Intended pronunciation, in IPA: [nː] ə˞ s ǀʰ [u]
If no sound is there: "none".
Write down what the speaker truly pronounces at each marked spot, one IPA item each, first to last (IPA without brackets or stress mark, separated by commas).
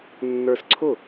nː, ʊ